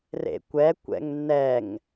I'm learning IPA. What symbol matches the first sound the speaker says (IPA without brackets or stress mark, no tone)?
r